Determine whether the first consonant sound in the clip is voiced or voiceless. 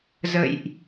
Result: voiced